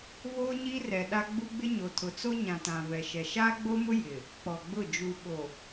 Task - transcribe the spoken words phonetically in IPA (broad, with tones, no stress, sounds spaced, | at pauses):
v oː˦ ɲ iː˦ r ɛ˨ ɗ a˦ ɡ͡b u˦ ɡ͡b ɪ˦ ɲ o˨ tʰ ʊ˨ t͡s o˦ ɲ ã˨ t ã˨ v ɛ˨ ʃ ɛ˨ ʃ aː˦ ɡ͡b o˦ m ʊ˦ j ɪ˨ | k͡p ɔ˨ ɡ͡b ʊ˦˨ d͡ʒ u˨ ɓ o˨